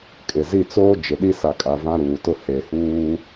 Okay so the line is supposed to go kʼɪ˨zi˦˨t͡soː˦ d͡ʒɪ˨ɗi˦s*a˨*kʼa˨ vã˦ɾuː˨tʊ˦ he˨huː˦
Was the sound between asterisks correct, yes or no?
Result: yes